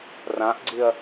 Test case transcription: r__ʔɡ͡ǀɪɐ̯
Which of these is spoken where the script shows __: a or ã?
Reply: ã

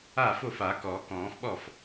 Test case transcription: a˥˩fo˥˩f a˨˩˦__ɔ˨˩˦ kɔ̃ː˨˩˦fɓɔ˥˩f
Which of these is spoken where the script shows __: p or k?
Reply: k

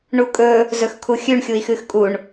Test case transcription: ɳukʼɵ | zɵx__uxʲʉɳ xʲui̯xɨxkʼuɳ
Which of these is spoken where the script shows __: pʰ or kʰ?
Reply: kʰ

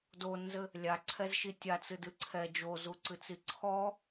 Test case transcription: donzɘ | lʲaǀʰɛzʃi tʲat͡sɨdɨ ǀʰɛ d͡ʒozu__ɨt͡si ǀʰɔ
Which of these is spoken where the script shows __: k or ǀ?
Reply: ǀ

